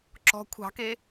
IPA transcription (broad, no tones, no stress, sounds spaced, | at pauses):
ǁ ɔ̤ kʷʰ ɑ̤ k e